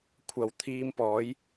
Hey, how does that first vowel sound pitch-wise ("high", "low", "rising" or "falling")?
low